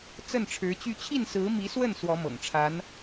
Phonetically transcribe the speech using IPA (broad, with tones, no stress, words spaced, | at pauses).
t͡sə˥˩nʈ͡ʂʰɻ̩˧˥t͡ɕy˥˧ t͡ɕʰi˥˩nsɹ̩˧˥mi˧˥swə˥˩n swɔ˧˥mɤ̰˨˩ŋʈ͡ʂʰa˧˥n